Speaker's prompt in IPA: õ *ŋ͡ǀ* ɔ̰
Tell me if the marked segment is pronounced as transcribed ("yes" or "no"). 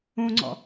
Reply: yes